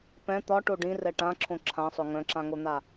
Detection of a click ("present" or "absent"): present